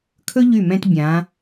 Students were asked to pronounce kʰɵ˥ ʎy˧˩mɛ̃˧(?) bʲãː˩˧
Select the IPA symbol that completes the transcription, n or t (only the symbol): t